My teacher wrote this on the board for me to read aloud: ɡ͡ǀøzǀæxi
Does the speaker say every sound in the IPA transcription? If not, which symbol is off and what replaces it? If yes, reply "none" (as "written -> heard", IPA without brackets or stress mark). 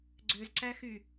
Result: i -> y